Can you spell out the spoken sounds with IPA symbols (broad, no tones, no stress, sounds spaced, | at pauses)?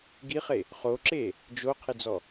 ɡ i χ e | χ o ǁ e | d͡ʒ o qʰ e d͡z ɔ